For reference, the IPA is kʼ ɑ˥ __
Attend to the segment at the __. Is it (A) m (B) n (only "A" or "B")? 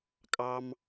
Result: A